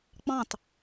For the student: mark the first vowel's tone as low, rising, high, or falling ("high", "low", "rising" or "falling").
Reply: falling